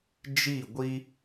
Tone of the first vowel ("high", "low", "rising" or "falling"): falling